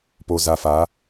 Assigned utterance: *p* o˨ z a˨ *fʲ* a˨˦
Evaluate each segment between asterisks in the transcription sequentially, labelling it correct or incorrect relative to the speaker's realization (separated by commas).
correct, incorrect